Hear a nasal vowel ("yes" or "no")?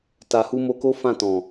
yes